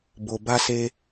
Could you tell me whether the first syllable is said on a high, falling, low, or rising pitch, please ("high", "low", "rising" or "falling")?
low